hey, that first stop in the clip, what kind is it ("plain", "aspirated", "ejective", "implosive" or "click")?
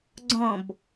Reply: click